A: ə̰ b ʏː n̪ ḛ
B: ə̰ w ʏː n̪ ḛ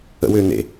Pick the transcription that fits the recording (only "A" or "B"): B